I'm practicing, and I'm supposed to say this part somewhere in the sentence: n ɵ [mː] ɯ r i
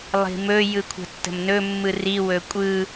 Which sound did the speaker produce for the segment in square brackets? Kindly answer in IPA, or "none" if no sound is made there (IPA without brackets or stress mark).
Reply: mː